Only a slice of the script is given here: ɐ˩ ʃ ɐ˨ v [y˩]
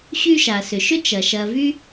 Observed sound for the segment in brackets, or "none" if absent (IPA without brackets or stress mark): y˥